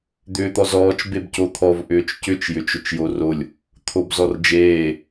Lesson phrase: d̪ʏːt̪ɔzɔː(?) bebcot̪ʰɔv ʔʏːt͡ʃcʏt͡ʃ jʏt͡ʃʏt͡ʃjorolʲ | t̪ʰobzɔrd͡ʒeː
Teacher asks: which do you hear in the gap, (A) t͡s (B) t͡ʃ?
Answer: B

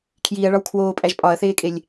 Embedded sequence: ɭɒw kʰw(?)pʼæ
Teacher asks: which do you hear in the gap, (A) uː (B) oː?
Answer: B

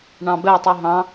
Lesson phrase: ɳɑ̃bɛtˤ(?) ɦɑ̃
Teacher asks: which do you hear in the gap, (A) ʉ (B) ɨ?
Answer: B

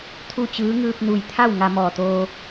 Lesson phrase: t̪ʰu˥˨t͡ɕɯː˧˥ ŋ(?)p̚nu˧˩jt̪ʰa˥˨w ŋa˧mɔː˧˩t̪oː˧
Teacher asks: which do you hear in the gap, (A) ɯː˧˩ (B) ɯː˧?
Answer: B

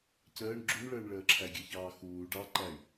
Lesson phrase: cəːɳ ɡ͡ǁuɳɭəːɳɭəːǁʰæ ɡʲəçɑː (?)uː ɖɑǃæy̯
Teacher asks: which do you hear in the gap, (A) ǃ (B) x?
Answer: B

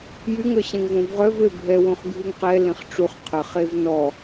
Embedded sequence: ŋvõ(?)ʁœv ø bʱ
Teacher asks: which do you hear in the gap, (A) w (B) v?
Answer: B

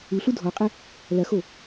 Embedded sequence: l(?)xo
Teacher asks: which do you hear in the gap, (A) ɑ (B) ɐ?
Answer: B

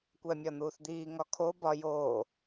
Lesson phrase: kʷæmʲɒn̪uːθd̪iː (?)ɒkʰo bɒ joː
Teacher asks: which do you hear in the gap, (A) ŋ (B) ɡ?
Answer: A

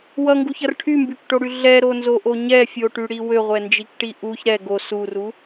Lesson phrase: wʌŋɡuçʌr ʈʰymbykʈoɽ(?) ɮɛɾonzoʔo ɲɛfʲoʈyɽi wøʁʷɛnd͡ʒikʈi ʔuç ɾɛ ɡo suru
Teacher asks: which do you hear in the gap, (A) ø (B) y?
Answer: B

